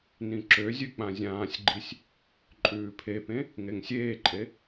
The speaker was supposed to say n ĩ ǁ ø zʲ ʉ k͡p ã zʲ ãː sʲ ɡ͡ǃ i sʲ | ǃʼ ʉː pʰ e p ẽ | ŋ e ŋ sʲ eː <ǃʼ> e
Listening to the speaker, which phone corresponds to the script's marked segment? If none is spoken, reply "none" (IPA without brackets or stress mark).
ǃʼ